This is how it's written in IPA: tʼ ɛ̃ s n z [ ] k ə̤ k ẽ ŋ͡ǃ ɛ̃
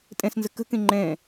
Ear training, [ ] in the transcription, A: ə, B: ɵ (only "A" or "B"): A